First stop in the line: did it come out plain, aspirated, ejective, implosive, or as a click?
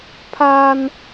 aspirated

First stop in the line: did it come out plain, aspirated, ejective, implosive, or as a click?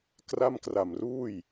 plain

